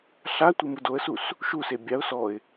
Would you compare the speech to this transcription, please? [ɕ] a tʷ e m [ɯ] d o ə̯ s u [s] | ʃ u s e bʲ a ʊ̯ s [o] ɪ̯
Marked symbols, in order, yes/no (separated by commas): no, yes, yes, no